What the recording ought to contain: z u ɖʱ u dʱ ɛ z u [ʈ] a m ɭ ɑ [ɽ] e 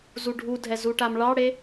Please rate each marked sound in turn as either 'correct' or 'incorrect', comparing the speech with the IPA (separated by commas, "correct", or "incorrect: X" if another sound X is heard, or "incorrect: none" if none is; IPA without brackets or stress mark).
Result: correct, correct